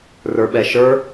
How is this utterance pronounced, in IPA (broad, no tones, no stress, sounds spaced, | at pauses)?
r ə˞ ɓ ɛ ʃ ə˞